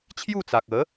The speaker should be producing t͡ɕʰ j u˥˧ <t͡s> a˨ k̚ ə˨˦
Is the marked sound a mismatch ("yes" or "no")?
no